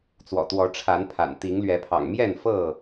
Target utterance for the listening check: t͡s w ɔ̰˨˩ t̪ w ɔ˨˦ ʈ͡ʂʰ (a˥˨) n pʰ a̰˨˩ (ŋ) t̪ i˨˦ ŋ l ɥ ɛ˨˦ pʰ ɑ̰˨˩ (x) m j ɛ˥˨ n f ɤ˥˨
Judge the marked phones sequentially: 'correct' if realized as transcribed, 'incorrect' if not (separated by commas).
incorrect, incorrect, incorrect